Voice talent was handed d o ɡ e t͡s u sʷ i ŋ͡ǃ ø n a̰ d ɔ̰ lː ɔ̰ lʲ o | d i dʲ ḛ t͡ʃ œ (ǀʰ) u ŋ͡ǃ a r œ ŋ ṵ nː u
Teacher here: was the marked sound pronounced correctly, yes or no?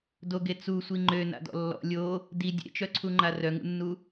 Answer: yes